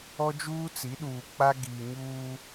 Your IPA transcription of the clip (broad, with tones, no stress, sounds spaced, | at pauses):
ɔ˦ d͡ʒ uː˦ t͡s i˨˦ ɗ uː˨ k͡p a˦ ɡ iː˨ ɲ uː˦